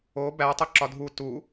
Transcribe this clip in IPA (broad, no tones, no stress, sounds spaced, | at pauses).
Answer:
o b æ tˤ o ǁ ɒ dʱ u t u